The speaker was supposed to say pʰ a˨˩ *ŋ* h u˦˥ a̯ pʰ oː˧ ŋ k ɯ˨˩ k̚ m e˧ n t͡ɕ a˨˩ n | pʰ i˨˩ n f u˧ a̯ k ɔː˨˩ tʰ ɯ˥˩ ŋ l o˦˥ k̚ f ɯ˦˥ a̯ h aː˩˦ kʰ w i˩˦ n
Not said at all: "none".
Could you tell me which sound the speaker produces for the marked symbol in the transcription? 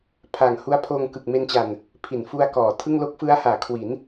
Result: ŋ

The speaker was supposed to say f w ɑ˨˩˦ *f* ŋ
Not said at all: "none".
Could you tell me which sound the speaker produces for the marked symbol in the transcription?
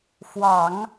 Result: none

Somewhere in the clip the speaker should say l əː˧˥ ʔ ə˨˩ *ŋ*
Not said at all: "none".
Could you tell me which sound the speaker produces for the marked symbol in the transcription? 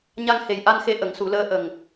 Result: ŋ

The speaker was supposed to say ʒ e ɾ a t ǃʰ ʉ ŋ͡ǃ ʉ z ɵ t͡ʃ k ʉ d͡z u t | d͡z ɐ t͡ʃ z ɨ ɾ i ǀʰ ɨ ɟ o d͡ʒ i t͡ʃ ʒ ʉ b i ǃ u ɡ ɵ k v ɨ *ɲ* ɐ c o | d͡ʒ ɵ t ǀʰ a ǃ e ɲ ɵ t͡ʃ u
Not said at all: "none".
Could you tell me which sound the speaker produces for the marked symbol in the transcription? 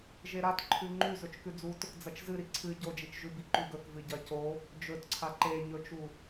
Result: ɟ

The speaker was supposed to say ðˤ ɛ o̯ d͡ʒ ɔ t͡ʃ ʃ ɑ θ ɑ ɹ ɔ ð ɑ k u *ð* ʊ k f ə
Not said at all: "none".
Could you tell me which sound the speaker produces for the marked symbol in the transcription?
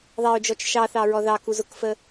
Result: z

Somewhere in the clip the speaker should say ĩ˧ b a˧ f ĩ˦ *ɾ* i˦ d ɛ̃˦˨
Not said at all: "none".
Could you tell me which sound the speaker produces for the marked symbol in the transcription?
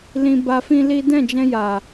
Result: l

